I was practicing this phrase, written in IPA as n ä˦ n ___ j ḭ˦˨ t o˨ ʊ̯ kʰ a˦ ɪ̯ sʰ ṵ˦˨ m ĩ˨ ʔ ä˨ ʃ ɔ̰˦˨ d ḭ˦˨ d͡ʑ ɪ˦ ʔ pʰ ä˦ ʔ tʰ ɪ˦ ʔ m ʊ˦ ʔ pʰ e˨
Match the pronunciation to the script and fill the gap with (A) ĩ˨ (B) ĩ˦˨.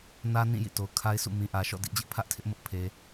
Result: B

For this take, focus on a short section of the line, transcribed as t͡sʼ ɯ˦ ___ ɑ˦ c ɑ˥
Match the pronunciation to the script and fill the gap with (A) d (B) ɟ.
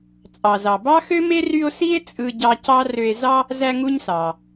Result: B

